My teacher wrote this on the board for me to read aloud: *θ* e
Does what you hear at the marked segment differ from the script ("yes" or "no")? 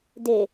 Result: yes